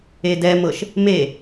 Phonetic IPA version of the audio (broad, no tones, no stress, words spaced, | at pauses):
edɛmɤʃ | me